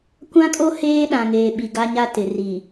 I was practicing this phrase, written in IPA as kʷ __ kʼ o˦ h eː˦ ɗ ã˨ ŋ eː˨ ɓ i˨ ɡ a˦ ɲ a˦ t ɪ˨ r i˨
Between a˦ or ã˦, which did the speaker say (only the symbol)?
ã˦